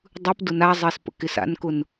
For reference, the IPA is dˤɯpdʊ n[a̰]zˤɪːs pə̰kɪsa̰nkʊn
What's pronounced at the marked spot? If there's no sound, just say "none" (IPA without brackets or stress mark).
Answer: a